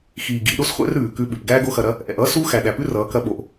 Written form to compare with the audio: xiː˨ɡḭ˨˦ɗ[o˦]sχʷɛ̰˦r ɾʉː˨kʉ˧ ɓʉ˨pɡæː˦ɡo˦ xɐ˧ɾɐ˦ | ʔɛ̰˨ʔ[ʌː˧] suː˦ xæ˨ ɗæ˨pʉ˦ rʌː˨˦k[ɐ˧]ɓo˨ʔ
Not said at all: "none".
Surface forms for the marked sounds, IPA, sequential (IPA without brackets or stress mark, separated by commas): o˦, ʌː˦, ɐ˧